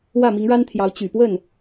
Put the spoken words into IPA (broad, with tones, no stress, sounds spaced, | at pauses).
w ä˥˩ m i˧˥ ŋ ɻ a˥ n t̪ʰ j ɑ˧˥ ʊ̯ t͡ɕ y˨˩ p w ə˥˩ n